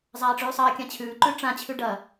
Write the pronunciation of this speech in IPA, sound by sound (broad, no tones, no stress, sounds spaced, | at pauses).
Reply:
zˤ aː ʈ͡ʂ ʉː sˤ ɐː kʲ ã t͡ɕʰ ʉː ǃ ʉ ʈ͡ʂ ã t͡ɕʰ ʉ ɖ ɐ